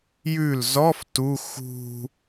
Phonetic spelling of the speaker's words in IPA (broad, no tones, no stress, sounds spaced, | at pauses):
j ʉ l z ɔ f t u x ṳ